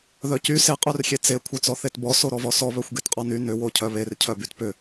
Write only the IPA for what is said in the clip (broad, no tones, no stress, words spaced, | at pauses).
ðœcy se qʼœrxʲet͡se kʷʰœt͡sɔθetbɔ soɾɔvɔsɔ βœxʷɡetqʼɔny nʏ wocʰœβer cʰœbytpʏ